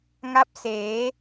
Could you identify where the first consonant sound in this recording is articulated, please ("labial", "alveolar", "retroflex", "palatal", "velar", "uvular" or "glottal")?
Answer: velar